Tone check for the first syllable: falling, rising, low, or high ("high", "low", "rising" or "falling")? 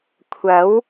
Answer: rising